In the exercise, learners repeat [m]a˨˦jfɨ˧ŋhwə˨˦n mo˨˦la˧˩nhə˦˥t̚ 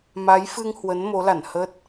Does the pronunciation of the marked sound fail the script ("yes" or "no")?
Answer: no